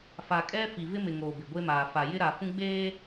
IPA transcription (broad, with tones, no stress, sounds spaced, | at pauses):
f a˨ kʼ ɛ˦ f i˨ v ɪ˦ m ɪ˨ ŋ oː˨ b ɪ˨ ɡʷ e˦ m aː˨ f a˨ j ɪ˦ ɾ a˨ f ũ˦ ɡ͡b eː˦